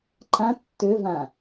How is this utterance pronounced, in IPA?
ǃ ã tː ø v ã

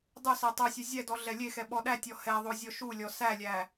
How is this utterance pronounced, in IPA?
dˤ u s e tˤ o sʲ e zʲ ɛ d ɔ ɮ ɛ lʲ e x ɛ ɓ ɔ ɗ æ tʲ ɔ h ɛ ðˤ o zʲ ɔ ʃ u lʲ ɔ s æ lʲ æ

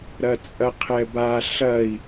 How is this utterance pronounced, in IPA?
ɾ ɐ t͡sʼ ɐ qʰ ɛ b a ɬ ɐ i̯

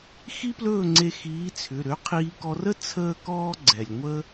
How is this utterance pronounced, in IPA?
x i˥ p l ɵː˥˨ ŋ͡ǀ e˧ x iː˨˥ t͡sʰ ʏ˩˧˩ ɾ ø˨˥ qʰ iː˧ k ɔ˧ r ə˥ t͡sʰ əː˥ k ɔː˥ ɡ͡ǀ ɛ˩ lʲ ŋʷ ə˥

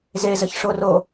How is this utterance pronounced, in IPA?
z e z ə ç ʂ o r o

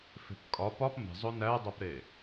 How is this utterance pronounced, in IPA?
f e̤ p kʼ ɒ p ɒ p m e̤ zˤ o n æ dˤ o p ɾ e

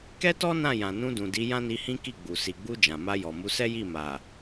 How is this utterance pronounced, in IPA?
k ɛ˦ t ɔ˦ n ã˦˨ j ã˨ n ũ˧ d ũ˨ d i˨˦ j ã˦ n i˧ h ĩ˦ k i˦˨ ɡ͡b u˨ s i˨ ɡ͡b u˧ d͡ʒ ã˨ m a˧ j ɔ˨ m u˨˦ s ɛ˦ j i˦˨ m a˨

